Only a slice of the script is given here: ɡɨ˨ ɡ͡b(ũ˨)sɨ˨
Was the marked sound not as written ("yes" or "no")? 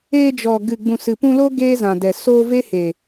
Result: no